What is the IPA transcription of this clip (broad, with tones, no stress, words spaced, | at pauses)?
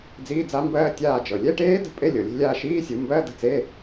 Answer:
d͡ziː˧˥˧d͡za˦˥mbɜː˦˥ tʲaː˦˨d͡ʒɤ˩ lʲɛ˧˥˧ʈeː˦˥ də̤˦˥pʼe˧˥˧ lʲɤ˩ lʲe̤˦˨lʲaː˦˨ ʃiː˧˥˧sʲu˩˧mbɜ˧˥˧ də̤˦˨t͡se˧˥˧